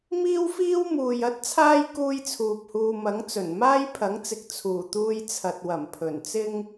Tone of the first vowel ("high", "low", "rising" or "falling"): high